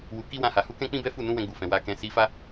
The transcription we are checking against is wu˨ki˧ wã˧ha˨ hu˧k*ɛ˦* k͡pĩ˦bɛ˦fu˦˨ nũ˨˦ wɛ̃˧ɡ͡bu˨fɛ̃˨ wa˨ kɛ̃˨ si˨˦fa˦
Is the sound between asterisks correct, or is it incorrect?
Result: incorrect